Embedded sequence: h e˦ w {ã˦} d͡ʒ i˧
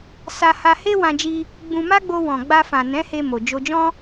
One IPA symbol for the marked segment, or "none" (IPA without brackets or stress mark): ã˧